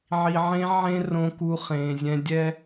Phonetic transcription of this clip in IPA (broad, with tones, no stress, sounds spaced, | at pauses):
ʕ i˨ ʕ ẽ˧ ʕ ẽ˧ r õ˧ k u˧ χ ẽː˨ zʲ ɛ̃˧ dʲ ɛ˦